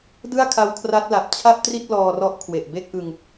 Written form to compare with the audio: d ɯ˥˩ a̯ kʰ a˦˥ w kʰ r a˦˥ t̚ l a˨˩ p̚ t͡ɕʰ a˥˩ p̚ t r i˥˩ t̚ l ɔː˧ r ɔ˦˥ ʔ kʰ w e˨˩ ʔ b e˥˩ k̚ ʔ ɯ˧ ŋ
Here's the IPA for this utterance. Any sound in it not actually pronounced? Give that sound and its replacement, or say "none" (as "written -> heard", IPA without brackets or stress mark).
none